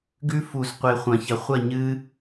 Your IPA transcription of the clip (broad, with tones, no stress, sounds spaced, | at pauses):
ɡ ʉ˧ f u˩ z qʷ e˩ χʷ ɐ̃˩ ç ɐ˩ χʷ ɐ˥˩ ɲ ɨ˧